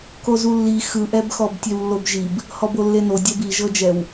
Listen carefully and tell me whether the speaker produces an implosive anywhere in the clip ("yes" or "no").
no